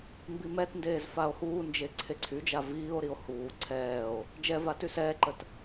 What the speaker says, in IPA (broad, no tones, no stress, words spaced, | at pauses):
mbimɛtndeːz fao̯huːnd͡ʒe ǀʰeǀʰyd͡ʒa viːo̯ɾio̯ huː ǀʰɛːo̯ | d͡ʒɛva tysɛːǃət